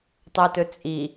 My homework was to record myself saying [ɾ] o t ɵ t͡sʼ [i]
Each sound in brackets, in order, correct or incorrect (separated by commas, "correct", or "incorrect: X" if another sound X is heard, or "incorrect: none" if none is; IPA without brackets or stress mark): incorrect: tˤ, correct